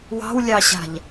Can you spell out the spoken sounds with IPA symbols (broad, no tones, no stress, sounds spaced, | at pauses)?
w ɑ̤ w lʲ ɑ ɕ a̤ ʎ